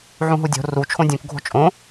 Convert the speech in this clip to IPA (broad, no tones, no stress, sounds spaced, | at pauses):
ʕ ũ ɦ u dʲ o̤ r u t͡ʃʰ õ dʲ ũ k ɡʱ o̤ t͡ʃʼ õ